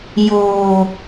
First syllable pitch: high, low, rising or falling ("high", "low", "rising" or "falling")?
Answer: low